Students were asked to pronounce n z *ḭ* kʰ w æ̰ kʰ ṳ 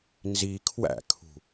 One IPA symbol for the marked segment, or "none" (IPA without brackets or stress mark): i